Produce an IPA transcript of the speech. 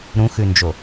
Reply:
ɾũxʉnd͡ʒo

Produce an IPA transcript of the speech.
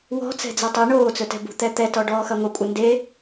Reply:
wɔ̤ t͡sɛ̤d͡zɛtˤu ɳoːt͡sɵtɛ̤ bṳt̪ɛt̪ɛtɔ ɖɔːxɐŋʷə kʷʼɐnde

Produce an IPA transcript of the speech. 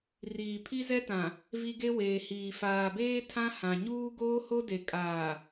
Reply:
riː˨pʰi˦zɛ˦tã˨ | vi˦ɡe˦ weː˨hiː˨ faː˨beː˦ tʰã˦hã˨ ɲuː˦ɡoː˦ho˦de˨ kʼaː˨

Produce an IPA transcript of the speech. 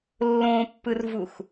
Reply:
lːõpːɯrvux

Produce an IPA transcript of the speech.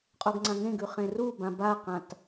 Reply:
qʼoɡŋ͡ǀãŋẽɡʉ χẽrubã baqãt

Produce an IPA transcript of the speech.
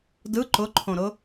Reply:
dɯ ǃʊǃʰõɾʊ

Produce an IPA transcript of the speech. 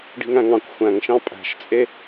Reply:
ɖi̤ŋæ̃ŋɑ̃kʷ xʷæ̃ŋʃɑ̃ pʼæ̤ʃt͡sʼe

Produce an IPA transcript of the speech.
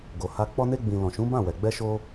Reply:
ɡo˨ha˧ k͡pɔ˧ne˧ɡ͡bĩ˨ lɔ̃˨ʃũ˨˦ bã˦˨wɛ˨ ɡ͡bɛ˧ʃo˧

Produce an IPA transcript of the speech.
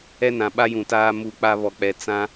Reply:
ɛ˦nã˨ ɓa˦jũ˨taː˦ mu˦k͡pa˦ βɔ˨k͡pɛ˨ t͡sã˦

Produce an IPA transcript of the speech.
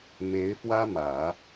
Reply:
me˧˥ɪ̯fwä˥mä˨˩˦

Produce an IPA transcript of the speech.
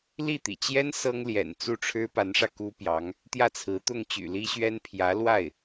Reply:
li˥˩t̪ḭ˨˩ t͡ɕjɛ˥n sɤ˥ŋljɛ̰˨˩n t͡su˥˩ʈ͡ʂʰɻ̩˥pa˧˥nʂä˧ ku˥pjɑ˧˥ŋ | t̪jä˥˩t͡sʰɹ̩˧˥ t̪ʊ˥˩ŋt͡ɕy̰˨˩li˥ɕɥɛ˥n pʰjä˧˥lwa˥˩ɪ̯

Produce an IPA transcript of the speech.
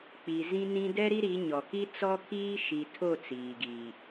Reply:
k͡pi˨zĩ˦nĩ˦ dɛ˦ɾi˦ ɾi˨˦ɲɔ˨ ki˦ t͡sɔ˦kʰiː˦ ʃi˨tʰo˦˨ t͡siː˨ɡi˨

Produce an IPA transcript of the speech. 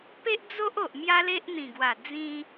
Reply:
pe˦ʔd͡zo˦ʔo˨ʔ mja˦le˦ʔn̪ĩ˨˩ɡwa˨˩ d͡zĩ˧

